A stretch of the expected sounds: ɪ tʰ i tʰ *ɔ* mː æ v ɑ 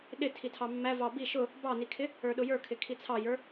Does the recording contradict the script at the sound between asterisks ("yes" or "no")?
yes